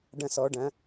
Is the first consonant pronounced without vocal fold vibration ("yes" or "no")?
no